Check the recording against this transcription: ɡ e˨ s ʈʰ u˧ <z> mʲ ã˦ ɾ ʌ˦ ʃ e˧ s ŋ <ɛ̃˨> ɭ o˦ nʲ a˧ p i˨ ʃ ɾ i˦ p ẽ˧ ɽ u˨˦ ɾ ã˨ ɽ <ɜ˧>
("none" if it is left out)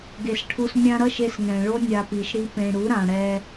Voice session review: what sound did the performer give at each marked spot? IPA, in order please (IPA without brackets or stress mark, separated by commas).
s, ɛ̃˨, ɛ˧